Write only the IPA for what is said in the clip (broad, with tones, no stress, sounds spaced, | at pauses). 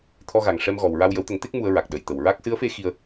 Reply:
t̪ʰ ɔ˧ ɣ a˨˩ ŋ ʂ ɛ˧ m ɣ ɔ˨˩ w ɹ a˧ w j ə˨˩˦ w t̪ ə˨˩˦ ŋ t̪ e˦˥ k̚ m u˧ ə̯ ɹ a˨˩ k̚ ɗ ə˨˩˨ j t̪ ə˨˩ w ɹ a˦˥ k̚ s ɨ˧˥ ə̯ f e˧˥ x i˧ ə̯